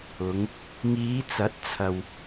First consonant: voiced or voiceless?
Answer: voiced